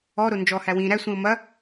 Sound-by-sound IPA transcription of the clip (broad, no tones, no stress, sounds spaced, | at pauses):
ɔ ɾ o n d͡ʒ ɔ h æ w ĩ ɾ æ sʷ ĩ o̯ m ɐ